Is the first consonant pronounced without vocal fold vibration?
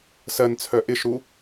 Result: yes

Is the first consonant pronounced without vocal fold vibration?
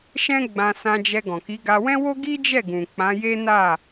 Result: yes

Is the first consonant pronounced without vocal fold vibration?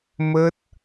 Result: no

